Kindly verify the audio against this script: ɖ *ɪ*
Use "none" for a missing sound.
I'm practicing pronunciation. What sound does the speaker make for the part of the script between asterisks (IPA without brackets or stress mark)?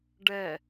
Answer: ɛ